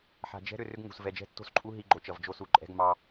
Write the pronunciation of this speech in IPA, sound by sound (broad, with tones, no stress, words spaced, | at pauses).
ħa̤˨d͡ʒɛ̤˦ ɾʏ˨rʏ˦ɡ ŋṳ˨s vɛ˨d͡ʒɛ̤˦tːo̤˦˨sǃʼu˦ ɦi˦ɡ͡ǃo˨t͡ʃʌ˨vd͡ʒo˦ su˨ǃʼɛ̤˦ɡmɑ˦